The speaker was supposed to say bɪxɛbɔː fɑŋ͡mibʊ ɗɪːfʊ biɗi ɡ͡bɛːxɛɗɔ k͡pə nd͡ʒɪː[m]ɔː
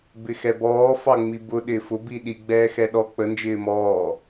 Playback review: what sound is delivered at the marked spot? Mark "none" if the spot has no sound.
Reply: m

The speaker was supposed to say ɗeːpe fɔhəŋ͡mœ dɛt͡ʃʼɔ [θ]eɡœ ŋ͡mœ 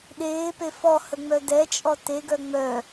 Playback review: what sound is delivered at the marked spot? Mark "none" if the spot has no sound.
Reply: t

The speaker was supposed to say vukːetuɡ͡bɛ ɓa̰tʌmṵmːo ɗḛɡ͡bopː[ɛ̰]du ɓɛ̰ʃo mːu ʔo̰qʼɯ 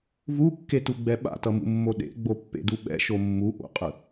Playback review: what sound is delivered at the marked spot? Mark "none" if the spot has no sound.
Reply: ḛ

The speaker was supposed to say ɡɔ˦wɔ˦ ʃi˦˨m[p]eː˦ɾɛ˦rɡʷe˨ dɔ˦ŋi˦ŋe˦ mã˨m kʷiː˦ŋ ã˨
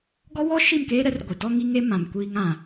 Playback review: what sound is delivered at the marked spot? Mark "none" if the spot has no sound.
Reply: k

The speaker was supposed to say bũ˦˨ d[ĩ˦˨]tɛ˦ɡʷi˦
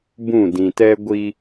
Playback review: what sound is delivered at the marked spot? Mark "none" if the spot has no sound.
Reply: ĩ˨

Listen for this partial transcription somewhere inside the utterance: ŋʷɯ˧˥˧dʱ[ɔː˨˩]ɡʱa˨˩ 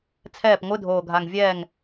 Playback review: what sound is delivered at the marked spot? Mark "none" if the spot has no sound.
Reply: oː˨˩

